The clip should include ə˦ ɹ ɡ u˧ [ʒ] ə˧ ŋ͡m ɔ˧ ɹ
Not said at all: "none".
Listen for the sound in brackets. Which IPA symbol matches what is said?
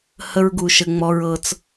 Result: ʃ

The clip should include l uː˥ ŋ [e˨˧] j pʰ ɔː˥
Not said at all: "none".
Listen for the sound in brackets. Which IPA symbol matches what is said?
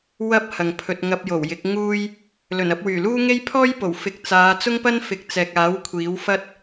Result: e˥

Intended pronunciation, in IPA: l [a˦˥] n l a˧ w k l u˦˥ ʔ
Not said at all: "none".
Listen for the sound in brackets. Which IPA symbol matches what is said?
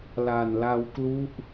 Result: a˨˩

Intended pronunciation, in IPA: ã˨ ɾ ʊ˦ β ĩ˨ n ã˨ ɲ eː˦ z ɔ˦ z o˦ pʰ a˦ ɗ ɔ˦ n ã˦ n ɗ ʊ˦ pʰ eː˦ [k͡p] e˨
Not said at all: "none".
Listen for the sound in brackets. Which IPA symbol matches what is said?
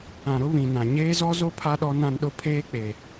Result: k͡p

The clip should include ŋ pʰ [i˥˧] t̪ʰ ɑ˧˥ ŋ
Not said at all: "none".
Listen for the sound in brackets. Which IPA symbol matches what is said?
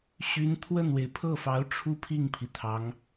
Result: i˩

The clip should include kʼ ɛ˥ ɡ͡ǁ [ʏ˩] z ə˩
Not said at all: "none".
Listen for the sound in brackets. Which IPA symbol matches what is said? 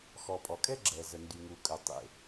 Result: ɛ˩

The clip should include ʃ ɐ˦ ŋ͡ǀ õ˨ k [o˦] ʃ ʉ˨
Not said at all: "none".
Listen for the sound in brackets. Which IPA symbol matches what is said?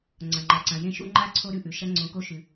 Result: o˦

